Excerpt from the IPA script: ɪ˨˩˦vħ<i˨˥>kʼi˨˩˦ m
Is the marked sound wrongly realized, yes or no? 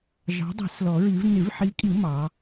no